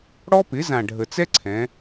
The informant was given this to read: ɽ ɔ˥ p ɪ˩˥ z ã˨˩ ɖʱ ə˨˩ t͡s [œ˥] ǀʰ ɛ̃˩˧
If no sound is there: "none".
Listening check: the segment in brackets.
ɛ˥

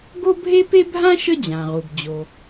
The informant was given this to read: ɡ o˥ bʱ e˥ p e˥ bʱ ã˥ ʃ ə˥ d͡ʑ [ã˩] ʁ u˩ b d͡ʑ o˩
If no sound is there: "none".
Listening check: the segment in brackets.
ã˩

